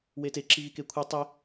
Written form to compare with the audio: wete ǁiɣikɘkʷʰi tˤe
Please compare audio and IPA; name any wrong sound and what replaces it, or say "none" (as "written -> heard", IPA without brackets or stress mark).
ɘ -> e